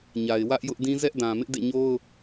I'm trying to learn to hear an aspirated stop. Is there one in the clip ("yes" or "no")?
no